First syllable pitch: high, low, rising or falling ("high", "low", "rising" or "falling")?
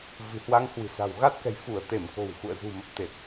low